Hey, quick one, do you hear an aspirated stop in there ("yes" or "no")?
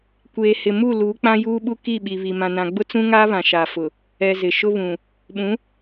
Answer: no